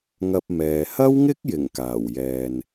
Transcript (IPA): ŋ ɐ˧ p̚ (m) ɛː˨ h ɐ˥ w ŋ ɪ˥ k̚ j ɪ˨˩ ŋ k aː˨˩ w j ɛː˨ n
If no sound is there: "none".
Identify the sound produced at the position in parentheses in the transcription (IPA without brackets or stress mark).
m